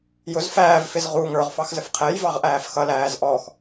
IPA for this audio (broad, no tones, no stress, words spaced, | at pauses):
jʊz fæːvfɪz ʁu ŋə˞ʁ fɑxzəfqʰɛjvɑʁ ʔæːfxʌlæːz ʔɔx